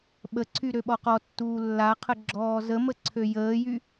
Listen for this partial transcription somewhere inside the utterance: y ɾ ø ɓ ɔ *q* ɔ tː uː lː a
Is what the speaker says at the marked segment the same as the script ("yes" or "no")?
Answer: yes